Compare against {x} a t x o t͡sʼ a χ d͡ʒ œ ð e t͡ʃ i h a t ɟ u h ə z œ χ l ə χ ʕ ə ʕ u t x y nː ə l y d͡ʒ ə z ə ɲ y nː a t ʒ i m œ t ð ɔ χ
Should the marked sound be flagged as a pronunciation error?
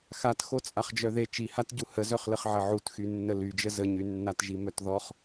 no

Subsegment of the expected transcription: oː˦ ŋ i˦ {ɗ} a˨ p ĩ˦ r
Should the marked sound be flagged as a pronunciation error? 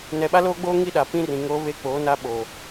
no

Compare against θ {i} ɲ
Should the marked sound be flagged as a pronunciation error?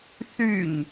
yes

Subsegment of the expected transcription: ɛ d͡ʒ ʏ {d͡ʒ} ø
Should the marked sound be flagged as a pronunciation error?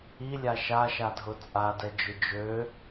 no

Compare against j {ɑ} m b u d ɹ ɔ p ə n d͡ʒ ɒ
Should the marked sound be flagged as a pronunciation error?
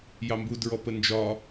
no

